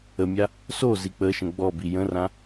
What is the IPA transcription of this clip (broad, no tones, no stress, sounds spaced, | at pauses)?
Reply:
ə mʲ a | s o z i k͡p ə ʃ ə̃ ɡ͡b ɔ b i j ə̃ r ã